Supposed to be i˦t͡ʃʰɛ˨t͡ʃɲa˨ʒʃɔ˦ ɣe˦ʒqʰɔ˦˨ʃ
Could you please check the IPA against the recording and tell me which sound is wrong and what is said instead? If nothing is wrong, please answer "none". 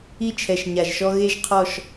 t͡ʃ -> ʃ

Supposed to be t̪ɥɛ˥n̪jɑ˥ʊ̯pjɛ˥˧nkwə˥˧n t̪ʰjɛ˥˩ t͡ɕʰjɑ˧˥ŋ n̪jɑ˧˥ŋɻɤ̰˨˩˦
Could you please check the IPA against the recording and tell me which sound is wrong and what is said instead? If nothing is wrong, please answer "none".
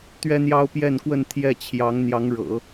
none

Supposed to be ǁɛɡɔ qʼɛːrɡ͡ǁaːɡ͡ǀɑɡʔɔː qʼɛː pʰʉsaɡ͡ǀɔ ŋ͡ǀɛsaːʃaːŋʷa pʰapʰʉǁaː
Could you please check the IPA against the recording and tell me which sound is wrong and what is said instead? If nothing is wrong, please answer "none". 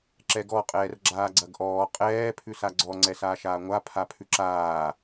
ɑ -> ɐ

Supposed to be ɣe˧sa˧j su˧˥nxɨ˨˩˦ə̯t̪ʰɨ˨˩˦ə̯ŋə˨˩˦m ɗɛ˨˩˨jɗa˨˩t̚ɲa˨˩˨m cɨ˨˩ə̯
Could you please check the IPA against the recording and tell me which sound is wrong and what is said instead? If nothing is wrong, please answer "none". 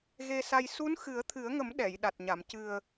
none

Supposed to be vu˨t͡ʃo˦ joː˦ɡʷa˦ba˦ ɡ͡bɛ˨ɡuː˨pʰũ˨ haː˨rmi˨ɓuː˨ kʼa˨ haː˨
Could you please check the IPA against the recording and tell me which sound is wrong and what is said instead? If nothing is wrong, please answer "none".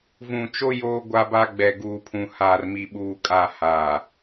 u˨ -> ũ˨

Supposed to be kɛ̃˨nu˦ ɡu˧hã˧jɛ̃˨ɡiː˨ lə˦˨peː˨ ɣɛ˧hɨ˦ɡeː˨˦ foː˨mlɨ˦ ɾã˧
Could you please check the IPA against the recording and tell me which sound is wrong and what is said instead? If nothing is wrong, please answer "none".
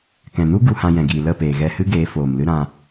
none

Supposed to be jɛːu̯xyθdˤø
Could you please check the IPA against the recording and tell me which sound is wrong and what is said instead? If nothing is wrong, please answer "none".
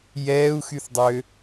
none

